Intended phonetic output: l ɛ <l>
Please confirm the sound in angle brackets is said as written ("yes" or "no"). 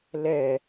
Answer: no